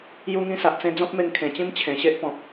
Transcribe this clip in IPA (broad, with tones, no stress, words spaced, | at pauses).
ju˧ŋĩ˧sa˨ʔt͡sẽ˧ d͡zɔ̃˦p̚me˧ŋ kʰẽ˨˩t͡ɕĩ˦m t͡ɕʰẽ˨˩ɕe˦ʔpɔ̃˨p̚